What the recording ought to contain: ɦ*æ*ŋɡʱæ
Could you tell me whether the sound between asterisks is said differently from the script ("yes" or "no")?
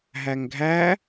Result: no